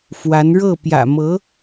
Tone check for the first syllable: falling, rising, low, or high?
rising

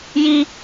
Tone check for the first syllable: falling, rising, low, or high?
high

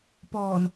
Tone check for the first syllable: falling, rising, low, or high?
low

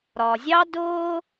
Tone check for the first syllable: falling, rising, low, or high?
low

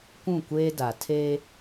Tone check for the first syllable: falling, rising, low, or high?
falling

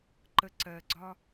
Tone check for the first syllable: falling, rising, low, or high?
low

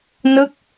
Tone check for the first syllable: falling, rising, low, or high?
falling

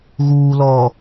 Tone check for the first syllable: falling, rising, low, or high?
low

